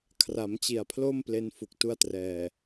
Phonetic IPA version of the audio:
kʰ r a˩˦ m t͡ɕ i˨˩ a̯ pʰ l o˥˩ m p l e˦˥ n f u˨˩ k̚ t u˦˥ a̯ t r ɛː˨˩

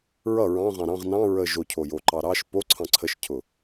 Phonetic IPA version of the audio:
ɹ ʌ ɹ ɑ̃ ʁ ɑ̃ ɾ ɑ̃ ʁ n ɑ̃ ɹ ə ʒ o cʰ o j o ǃ ɑ ɾ ɑ ʃ p o ǀʰ ɑ̃ ǀʰ ə ʃ cʰ ʊ

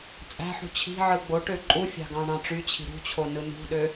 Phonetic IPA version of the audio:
t͡sʼ æ̤ ħ ṳ t͡ɕʰ i̤ ʕ ɯ ɡ͡b o ʈ ø ǃʼ u fʲ ɑ̤ ɡ ɑ̃ ɳ ɑ̃ ʈ͡ʂ y t͡ɕʰ i̤ ɾ ṳ t͡ɕʰ o n ɯ n ṳ ɗ ø

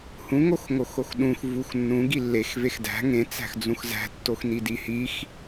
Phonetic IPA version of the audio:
h ũ ŋ o x ŋ o x o x ɗ ũ x v u x nː ũ ɡ i lː e x v e x d æ̤ ŋ ẽ t͡s æ̤ x d͡z ũ x z æ̤ tː o x n i d i h i x

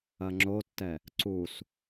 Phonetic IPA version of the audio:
ɐ ŋ͡ǁ o tː ɛ | ǀ u s

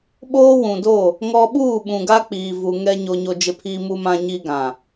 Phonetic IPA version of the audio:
ɓ oː˦ w ũ˨ d oː˦˨ | ŋ ɔ˦ ɓ uː˦˨ ɓ ũ˨ ɡ a˦ k͡p iː˨ v u˨ ŋ ɛ˦ ɲ o˦ ɲ o˦ d͡ʒ ɪ˦ pʰ iː˦ m u˦ m ã˦ ɲ iː˦ ɡ ã˨

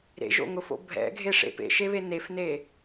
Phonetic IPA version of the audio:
ɾ ḛ ʒ o̰ ŋ ʊ f o̰ bʱ ɛ̰ ɡʱ e ʂ ḛ p ḛ ʃ e β e n e f n e

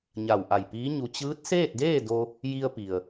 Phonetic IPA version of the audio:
ɲ a˧˩ w ʔ a˧˩ j p iː˧˥ ɲ u˧ t͡ɕ ɯː˧˥ t̚ s eː˥˨ t̚ d eː˥˨ d o˧ | j i˧ ə̯ p i˩ ə̯

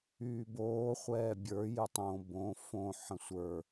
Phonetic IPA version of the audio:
yː b oː χʷ ɛː bʲ ə˞ j ɨ tˤ õ b õ f õ ħ ə̃ sʷ ə˞

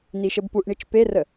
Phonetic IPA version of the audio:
n̪ i ʃ ə b p u ʔ ɳ i t͡ʃ p e r ə

